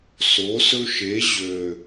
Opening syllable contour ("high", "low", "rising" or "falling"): rising